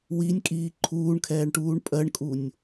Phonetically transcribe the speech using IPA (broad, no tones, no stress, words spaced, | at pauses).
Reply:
winʲkʼiː ǃʰuːɳkʰɛːɳʈuːɳ pʼɜɳkʼunʲ